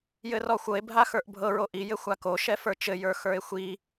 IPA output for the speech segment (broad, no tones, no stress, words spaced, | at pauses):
jɘrɔxʷɤe̯ bʱaxə˞ʔbʱɤ ɹoʔi jɘxʷako ʃɛfə˞t͡ʃɘ jə˞xə˞e̯xʷi